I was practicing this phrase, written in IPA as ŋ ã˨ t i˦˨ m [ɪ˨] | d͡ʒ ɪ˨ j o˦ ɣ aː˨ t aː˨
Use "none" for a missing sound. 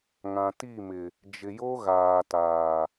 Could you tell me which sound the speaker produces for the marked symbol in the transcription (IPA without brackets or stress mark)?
ɪ˨